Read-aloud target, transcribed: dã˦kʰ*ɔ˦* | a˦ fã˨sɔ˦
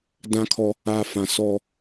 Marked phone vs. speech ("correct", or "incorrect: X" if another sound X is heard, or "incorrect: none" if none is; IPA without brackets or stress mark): correct